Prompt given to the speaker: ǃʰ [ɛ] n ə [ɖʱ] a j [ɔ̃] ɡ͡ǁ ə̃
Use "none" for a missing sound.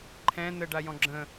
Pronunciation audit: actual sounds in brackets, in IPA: ɛ̃, ɖ, ɔ̃

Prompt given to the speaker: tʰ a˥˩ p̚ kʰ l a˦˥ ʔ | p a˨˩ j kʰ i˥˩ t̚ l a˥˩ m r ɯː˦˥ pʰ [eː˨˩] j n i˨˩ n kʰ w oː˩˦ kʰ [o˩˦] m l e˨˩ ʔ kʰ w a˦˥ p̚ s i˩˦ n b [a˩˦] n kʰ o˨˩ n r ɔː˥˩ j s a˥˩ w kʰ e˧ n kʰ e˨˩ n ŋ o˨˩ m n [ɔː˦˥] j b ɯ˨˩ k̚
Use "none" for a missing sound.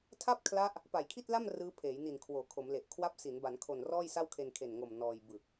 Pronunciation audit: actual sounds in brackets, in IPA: eː˩˦, o˩˦, a˩˦, ɔː˧

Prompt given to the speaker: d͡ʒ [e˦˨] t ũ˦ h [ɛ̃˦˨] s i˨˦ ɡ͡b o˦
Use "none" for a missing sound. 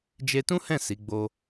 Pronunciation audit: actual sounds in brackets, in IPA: e˧, ɛ̃˦˨

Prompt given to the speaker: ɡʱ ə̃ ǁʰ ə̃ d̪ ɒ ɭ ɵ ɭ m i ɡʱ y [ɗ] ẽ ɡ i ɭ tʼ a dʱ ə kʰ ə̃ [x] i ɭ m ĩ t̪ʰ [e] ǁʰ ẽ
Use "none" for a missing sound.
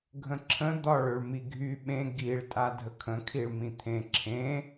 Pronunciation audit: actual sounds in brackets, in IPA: ɓ, kʰ, ẽ

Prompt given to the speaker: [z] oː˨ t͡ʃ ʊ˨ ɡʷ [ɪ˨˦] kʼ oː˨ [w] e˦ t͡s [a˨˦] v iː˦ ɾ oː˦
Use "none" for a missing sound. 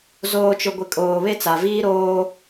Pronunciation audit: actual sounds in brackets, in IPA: z, ɪ˨, β, a˨

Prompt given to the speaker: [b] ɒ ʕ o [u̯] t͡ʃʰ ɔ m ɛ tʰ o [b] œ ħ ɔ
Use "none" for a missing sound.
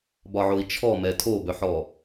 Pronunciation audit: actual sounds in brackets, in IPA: b, i̯, b

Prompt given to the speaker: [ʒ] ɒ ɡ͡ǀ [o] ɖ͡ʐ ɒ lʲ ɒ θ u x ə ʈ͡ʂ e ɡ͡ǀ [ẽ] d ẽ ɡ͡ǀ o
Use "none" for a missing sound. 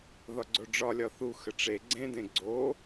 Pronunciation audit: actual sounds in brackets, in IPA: ð, o, ẽ

